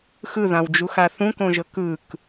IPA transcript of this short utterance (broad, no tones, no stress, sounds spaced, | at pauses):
x ɯ ð ã w d͡ʒ u x a θ ũ k õ ʒ ɤ k ɯ k